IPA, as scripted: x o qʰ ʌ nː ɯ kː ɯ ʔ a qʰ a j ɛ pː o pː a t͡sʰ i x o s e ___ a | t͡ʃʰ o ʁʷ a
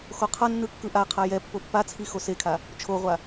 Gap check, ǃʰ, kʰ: kʰ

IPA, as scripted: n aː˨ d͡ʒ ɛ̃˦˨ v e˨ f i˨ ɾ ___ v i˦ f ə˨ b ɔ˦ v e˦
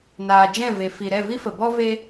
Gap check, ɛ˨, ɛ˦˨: ɛ˦˨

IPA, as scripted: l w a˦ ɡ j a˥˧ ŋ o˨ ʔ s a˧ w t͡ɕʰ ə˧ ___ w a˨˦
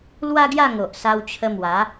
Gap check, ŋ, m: m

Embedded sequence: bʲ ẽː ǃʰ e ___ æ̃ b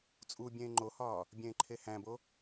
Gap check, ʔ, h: h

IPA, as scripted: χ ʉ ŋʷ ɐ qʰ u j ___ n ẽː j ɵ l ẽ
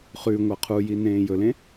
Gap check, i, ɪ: i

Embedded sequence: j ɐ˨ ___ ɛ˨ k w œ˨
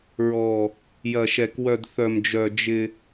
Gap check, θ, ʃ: ʃ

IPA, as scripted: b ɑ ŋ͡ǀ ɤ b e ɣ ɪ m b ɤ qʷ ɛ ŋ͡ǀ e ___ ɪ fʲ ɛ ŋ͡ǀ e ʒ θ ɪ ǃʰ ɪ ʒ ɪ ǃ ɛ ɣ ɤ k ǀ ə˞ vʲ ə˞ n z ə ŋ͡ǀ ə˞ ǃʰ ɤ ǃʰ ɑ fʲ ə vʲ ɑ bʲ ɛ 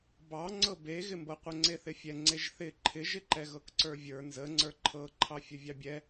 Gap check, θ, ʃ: θ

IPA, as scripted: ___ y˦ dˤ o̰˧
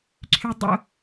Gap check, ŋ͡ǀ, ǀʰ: ǀʰ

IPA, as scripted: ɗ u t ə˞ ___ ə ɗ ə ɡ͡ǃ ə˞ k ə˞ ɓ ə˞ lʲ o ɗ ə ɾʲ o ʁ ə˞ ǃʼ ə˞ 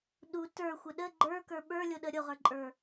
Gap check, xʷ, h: xʷ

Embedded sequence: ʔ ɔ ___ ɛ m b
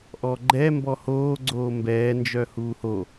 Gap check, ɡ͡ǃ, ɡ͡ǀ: ɡ͡ǃ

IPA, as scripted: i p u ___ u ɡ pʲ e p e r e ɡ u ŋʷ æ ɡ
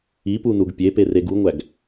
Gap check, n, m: n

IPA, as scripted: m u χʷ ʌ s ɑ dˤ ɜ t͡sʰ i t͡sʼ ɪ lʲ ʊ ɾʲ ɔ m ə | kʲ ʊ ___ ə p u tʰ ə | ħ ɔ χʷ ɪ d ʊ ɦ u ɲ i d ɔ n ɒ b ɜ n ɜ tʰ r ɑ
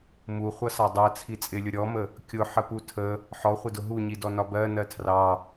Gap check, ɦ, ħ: ħ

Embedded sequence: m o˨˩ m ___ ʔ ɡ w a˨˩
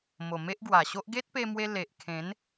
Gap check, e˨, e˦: e˦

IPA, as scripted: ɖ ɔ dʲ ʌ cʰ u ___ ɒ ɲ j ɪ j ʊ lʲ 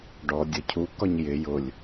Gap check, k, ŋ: k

